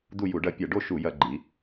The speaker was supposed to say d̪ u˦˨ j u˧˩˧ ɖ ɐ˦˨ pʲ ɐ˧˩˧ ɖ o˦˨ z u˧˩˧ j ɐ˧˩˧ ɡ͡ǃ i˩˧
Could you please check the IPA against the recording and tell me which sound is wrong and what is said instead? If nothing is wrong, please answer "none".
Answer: z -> ʃ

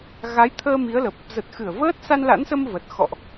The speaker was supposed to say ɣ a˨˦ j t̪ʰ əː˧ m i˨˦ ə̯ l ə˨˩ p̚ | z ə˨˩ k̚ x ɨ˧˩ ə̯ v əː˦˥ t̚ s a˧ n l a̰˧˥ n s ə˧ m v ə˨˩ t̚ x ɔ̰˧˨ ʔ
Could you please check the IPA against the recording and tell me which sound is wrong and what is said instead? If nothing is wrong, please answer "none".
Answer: k̚ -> t̚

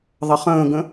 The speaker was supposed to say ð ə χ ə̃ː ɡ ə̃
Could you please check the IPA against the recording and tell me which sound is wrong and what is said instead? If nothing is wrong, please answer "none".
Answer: ð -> ðˤ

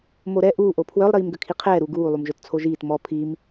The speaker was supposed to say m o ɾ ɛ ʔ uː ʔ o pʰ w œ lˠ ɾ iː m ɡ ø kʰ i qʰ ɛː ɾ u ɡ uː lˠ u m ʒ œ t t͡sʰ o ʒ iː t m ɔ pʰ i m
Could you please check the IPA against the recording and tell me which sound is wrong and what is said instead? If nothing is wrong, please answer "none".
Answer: none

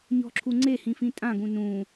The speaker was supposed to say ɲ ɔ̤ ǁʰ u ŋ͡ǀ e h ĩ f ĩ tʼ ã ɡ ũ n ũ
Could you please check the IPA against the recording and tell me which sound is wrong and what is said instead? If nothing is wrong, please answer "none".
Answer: none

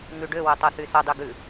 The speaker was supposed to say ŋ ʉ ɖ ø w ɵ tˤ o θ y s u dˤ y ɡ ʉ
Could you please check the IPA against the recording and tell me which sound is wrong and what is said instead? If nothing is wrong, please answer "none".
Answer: u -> o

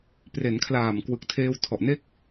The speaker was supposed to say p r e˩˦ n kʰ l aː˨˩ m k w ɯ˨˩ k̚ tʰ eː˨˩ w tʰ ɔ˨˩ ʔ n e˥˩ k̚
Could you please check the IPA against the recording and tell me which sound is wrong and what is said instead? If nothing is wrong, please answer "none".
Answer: eː˨˩ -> eː˧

